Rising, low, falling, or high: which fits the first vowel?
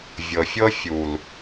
low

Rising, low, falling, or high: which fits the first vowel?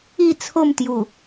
falling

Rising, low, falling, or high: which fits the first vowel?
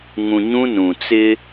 low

